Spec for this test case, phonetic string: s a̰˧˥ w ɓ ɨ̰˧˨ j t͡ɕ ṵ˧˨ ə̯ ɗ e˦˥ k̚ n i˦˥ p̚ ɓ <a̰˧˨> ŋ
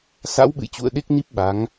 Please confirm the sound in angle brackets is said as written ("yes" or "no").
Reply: no